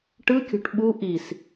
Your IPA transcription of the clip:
ʈɯkʲo̤ʈ ɓu ʔis

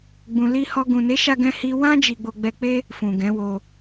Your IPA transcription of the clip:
ɡ͡bũ˨li˧hɔ˧ ɡũ˨ne˨˦ʃa˧ ɡɛ̃˧hi˧ wã˦ d͡ʒi˧ɡ͡bo˧ɡ͡bɛ˧k͡pe˦ | fũ˨ɡɛ̃˨˦wo˧

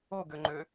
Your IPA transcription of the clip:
oɡøŋ͡ǃø

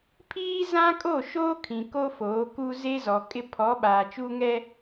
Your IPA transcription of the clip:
pʰiː˦zã˦ kʼo˦˨ʃoː˦kʰĩ˨ ko˦foː˨˦ku˦ ze˦zɔ˨kʼɪ˦ pʰɔ˨˦ɓaː˨t͡ʃuː˦ŋɛ˦

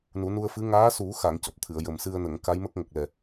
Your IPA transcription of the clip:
nu˨˩˦nu˧ə̯fɨ˧˥ ŋaː˧˥su˨˩˦xa˨˩˨ŋ cɔ˨˩p̚t̪ʰɨ˨˩˨ə̯jə˨˩m sɨ˧ə̯nə˨˩˨ŋ ka˧˥jmə˦˥k̚ŋə˨˩k̚lɛ˨˩

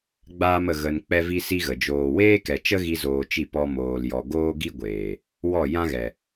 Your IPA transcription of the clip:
ɡ͡baː˦mə˧ ɣə˧n k͡pɛ˦vi˦si˦ɣə˨ d͡ʒoː˨weː˦kɛ˨ t͡ʃə˦ɣi˧ zoː˧t͡ʃi˦˨ pɔ˧ moː˨ljɔ˨ ɡoː˦ɡi˦ɡʷeː˨ | wɔ˦˨ jã˦ɣɛ˨

